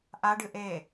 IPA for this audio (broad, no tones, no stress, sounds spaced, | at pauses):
ʔ a ɖ ɨ ʔ e